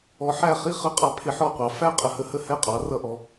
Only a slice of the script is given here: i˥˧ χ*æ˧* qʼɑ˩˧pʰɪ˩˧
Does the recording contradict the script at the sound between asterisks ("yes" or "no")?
yes